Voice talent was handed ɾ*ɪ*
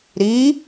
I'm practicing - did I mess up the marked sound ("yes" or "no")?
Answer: yes